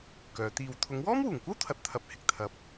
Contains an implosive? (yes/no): no